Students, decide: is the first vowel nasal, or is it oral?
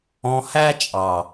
nasal